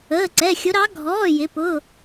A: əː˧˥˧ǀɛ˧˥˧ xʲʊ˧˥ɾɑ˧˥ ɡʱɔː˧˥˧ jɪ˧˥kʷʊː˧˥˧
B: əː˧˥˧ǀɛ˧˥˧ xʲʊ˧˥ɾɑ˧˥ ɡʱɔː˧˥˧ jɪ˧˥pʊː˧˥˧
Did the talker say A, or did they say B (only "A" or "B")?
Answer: B